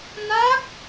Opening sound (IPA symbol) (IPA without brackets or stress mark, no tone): n